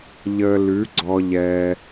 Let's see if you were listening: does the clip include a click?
yes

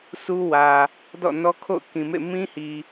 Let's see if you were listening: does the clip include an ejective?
no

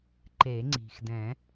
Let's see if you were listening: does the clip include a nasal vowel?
yes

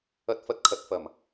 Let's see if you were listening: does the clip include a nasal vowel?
no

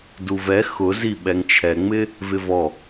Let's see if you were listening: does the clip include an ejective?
no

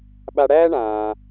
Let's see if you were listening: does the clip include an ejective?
no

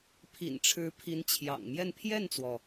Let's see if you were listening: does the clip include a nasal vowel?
no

